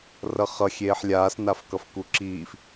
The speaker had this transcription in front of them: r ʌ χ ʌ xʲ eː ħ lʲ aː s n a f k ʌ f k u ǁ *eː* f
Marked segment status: incorrect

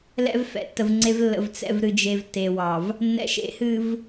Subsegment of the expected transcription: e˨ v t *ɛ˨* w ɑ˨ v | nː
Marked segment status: incorrect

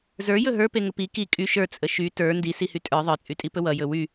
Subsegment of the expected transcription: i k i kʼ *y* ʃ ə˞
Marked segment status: correct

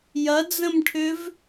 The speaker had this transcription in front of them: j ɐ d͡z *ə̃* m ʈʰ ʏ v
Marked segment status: correct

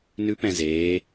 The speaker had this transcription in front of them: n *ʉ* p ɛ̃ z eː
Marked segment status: correct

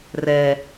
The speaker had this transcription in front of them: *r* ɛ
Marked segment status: correct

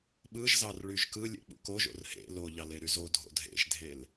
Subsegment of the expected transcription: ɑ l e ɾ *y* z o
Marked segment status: correct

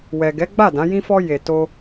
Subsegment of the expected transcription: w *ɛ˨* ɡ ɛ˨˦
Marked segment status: correct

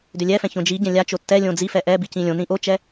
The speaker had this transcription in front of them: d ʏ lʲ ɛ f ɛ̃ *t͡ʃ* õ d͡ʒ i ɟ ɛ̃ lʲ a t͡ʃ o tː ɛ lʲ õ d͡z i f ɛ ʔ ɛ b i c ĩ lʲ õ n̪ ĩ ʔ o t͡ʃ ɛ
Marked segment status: incorrect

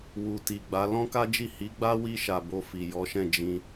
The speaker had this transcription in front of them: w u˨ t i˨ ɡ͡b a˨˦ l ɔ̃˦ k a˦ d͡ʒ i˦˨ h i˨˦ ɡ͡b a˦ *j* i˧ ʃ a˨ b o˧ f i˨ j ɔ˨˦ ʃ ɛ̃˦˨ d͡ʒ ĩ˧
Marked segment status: incorrect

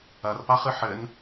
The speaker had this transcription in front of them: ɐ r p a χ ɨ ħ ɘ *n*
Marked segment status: correct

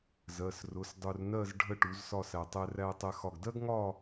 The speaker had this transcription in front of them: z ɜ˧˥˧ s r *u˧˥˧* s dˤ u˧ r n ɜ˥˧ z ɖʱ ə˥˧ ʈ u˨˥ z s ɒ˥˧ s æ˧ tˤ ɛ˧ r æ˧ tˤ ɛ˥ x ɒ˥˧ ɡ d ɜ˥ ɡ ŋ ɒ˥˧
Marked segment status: incorrect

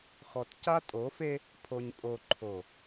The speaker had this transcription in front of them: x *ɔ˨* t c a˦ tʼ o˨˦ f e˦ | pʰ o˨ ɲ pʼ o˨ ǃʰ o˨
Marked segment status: correct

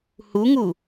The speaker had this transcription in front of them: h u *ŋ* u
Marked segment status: correct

